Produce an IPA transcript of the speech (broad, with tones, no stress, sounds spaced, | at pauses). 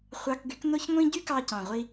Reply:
χʷ ɑ˧ k ɡ y˨˦ k n o˦ ç ŋʷ ĩ˦ ɟ y˦ k ɑ˧ c ɑ̃˨ ʁʷ i˧